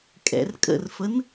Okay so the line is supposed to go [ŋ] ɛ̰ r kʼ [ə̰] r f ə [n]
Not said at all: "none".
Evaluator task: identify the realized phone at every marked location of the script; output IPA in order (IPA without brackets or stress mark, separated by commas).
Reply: kʼ, ə̰, n